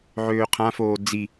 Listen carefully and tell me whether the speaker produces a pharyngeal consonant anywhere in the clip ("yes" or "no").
yes